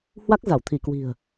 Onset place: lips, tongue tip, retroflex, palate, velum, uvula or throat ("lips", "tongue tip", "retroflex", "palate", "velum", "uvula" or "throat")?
throat